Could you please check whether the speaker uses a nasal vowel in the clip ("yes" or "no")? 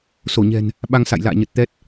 no